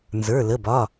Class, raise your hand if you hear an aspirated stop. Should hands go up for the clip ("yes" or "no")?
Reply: no